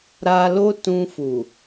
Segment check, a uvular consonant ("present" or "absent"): absent